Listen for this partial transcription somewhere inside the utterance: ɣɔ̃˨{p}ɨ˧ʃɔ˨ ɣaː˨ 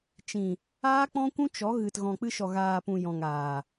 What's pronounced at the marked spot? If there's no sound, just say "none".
k͡p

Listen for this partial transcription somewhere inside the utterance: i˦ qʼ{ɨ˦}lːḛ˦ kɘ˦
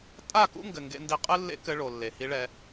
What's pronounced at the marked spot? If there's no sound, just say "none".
ɨ˦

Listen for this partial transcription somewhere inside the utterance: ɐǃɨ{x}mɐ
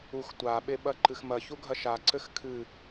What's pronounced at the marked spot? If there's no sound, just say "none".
x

